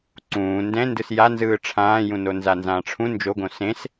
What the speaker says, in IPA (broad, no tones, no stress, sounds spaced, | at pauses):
ǀ ũː n d ɛ̃ n d ɯ s j a n z ɯː ʈ͡ʂʰ ãː j ũ n o n z a n z ãː ʈ͡ʂʰ ũ n d͡ʒ o ɡ õ s ẽ s